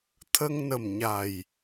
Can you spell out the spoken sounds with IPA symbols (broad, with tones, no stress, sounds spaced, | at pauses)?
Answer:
t̪ʰ ə˧ ŋ n ə˨˩ m ɲ a˨˩ j